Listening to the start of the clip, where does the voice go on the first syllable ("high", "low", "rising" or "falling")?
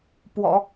low